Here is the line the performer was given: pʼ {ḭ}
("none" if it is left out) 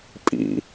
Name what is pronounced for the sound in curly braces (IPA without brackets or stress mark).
ḭ